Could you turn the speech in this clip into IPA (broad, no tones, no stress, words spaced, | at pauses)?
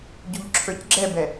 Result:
ɟuʎǁʰə˞cɡ͡ǁɛbɛ